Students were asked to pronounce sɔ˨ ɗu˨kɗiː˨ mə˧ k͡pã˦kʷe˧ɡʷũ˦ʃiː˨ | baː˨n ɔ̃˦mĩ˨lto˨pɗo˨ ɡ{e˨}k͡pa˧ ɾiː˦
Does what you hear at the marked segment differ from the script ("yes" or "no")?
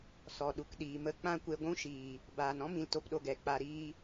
yes